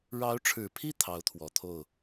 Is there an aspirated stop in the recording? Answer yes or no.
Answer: yes